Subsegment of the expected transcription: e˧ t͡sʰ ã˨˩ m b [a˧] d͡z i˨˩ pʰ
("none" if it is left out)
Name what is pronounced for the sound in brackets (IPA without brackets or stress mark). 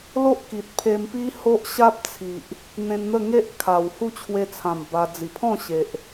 a˧